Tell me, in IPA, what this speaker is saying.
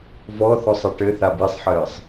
v ɔ θ ɔ sˤ e ʈ ɘ θ a b i sˤ ħ ɘː sˤ

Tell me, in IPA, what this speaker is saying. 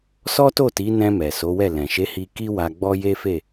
s ɔ˦ t o˦˨ t i˨˦ n ɛ̃˧ m ɛ˨ s o˨˦ w ɛ˦˨ l ɛ̃˨ ʃ e˨˦ h i˧ k i˦ w a˧ ɡ͡b ɔ˦ j e˦ f e˦˨

